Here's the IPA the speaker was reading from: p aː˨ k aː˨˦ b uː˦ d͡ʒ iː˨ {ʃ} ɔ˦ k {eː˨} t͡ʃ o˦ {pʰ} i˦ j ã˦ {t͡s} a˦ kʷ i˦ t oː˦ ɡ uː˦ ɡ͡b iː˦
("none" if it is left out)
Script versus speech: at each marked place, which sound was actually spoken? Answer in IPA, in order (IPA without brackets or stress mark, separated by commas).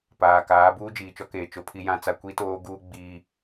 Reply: t͡ʃ, eː˨, pʰ, t͡s